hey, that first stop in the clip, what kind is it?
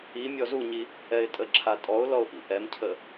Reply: ejective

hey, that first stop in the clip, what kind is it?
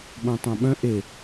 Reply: implosive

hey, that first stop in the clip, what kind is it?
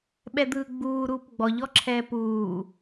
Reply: implosive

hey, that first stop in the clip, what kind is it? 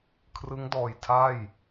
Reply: aspirated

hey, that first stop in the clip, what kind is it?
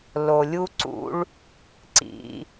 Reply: click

